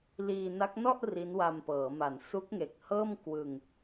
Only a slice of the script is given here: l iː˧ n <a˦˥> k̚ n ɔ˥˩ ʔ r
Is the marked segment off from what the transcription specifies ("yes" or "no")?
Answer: no